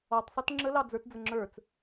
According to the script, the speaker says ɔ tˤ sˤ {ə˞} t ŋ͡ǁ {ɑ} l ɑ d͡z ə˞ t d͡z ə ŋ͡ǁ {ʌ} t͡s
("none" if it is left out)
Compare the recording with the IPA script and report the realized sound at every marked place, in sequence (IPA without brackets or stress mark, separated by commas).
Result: ʌ, ə, ə˞